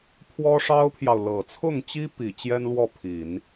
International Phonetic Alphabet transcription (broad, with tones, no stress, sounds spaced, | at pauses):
pʰ w ɔ˥ ʂ ɑ˥ ʊ̯ pʰ j ɑ˨ ʊ̯ l ɤ˨˩ t͡sʰ ʊ˥˩ ŋ t͡ɕ i˥ p i˨˩ t͡ɕ j ɛ˥ n l w ɔ˥˩ pʰ i˨˩˦ n